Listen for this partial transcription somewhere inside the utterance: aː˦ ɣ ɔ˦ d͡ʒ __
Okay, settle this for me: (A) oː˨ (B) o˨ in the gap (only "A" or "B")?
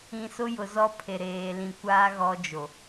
B